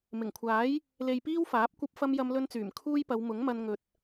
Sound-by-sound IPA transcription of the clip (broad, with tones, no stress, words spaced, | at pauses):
mɪ˨˩ŋkʷʰaː˨˥j | le˧jpiː˥wfaː˨˥p̚ kʷɐ˥p̚fɐ˥m jɐ˥mlɵ˥nt͡syː˨˩m kʰuː˥jpɐ˨˧w mʊ˨˥ŋmɐ˧n ŋɵ˨t̚